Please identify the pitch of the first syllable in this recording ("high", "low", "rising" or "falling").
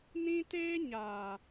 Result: high